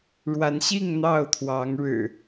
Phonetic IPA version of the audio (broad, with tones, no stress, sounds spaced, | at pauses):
ɻ w a˨˦ n ɕ i˥˨ ŋ n̪ ɑ˥˨ ʊ̯ t̪ʰ w ɑ˨˦ ŋ ɻ ɻ̩˨˩